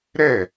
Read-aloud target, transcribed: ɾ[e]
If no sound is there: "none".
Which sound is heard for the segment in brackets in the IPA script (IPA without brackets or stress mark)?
ɛ